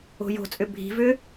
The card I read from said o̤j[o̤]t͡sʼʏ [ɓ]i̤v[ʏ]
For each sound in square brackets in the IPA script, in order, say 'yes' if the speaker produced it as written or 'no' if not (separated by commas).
yes, no, yes